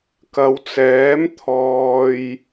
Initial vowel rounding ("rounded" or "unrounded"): unrounded